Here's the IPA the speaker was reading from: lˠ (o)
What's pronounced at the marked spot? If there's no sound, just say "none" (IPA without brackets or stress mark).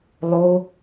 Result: o